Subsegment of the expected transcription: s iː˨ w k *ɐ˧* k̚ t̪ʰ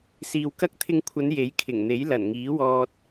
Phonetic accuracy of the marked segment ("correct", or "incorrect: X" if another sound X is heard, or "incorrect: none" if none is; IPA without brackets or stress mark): incorrect: ɐ˥